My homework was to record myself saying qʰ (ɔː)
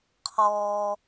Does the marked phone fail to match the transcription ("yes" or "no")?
no